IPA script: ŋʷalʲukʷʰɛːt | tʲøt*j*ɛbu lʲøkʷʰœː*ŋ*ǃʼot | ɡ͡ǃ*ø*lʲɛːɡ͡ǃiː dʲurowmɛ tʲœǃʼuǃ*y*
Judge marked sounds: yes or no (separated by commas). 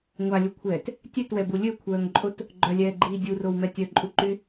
no, yes, no, yes